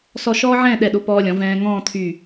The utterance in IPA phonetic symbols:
sɔ˥˧ ʃɔː˥ʕɛ̃ː˥˧ɗɛ˧˩ɗo˧ pɔː˧lʲɔ̃˩˧ vɛ̃ː˧ ŋɔ̃ː˥˧t̪ʰy˧˩

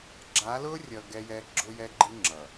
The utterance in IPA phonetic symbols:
ɡ͡ǁa˨˦lʊː˦rʲʌ˨ ɡɛ˦jɛ˦ ɡ͡ǁʊ˦jɛ˦ɡ͡ǃi˦ ŋ͡ǁʌ˨

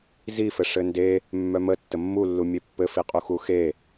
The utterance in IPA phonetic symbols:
zifɘ ʂɘnde | mːœmə tːəmːulːu mʲepːɘ fiqʼuxuxe

